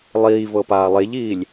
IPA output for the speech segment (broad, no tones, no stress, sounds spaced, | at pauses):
lˠ iː v ɤ p aː lˠ e ʎ iː lʲ